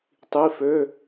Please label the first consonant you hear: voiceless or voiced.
voiceless